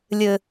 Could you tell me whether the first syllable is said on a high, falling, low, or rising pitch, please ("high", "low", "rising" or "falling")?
low